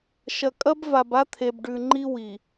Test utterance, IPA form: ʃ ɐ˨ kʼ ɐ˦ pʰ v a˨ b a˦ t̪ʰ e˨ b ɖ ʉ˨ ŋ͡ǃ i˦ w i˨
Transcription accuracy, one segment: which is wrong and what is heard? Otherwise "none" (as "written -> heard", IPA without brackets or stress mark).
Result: pʰ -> b